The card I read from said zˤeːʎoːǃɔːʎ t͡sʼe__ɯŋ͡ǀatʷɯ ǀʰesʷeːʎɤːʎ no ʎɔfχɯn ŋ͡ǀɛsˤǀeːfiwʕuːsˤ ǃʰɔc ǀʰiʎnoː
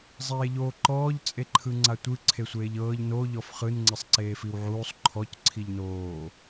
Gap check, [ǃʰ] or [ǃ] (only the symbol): ǃʰ